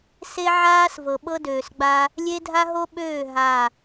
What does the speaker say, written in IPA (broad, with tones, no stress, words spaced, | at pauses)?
se˦ʕaː˦s vɤ˨ɓɤ˦døː˨sɡ͡ba˦ | lʲe˦dʱa˦ɦo˦ɓøː˦˨ ɦa˦˨